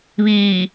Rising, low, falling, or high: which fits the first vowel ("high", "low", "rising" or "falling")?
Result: low